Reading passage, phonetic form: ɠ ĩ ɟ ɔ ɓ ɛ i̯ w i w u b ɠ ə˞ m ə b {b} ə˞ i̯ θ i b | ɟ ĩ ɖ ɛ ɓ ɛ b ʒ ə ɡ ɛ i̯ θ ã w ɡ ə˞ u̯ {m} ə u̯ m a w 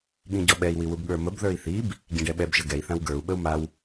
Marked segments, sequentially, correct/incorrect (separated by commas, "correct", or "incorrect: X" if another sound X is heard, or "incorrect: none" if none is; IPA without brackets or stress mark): incorrect: ð, incorrect: ɓ